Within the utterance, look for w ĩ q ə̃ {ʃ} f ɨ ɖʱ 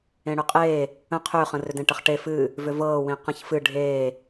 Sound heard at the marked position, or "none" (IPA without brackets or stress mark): ç